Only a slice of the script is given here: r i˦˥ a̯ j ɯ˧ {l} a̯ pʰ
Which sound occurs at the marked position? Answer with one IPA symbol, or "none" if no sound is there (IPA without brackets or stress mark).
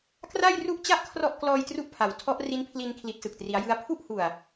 none